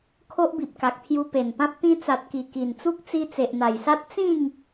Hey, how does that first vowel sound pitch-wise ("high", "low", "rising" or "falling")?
high